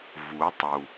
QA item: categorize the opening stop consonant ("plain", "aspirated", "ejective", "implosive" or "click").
plain